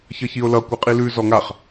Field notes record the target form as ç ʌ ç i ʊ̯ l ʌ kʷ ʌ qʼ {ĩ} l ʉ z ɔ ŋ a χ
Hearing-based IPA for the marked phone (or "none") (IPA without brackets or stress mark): i